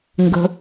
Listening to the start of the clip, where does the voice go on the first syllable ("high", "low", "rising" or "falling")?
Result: low